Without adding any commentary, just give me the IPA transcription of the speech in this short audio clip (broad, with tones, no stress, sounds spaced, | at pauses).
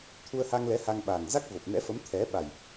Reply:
t̪ʰ u˧ ə̯ h a˧ ŋ l ɛ˨˦ h a˧ ŋ ɓ a˨˩ ŋ z a˦˥ k̚ v o˨˩ p̚ n ɛ̰˧˥ f ə˨˦ m t̪ʰ ɛ˨˦ ɓ a˨˩ j